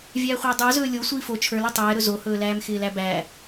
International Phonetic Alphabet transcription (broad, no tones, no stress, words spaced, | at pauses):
vʲæːχʷɪːdˤə˞zɵː lʲo sʷiːfo t͡ʃʰə˞lɵ tˤɛːɾɵ zohɵːlæːm xɪːlæbæ